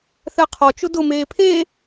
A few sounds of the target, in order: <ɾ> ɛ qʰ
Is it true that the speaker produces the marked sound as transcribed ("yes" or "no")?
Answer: no